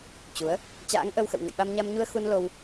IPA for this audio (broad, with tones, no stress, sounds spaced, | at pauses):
t͡ɕ u˨˦ ə̯ | t͡ɕ a̰ː˧˥ ŋ ʔ ə˧ w x ə̰˧˨ w ŋ ə̰˧˨ j ɓ a˧ m ɲ a˧ m ɲ u˧ ə̯ x u˧ n l o˧ w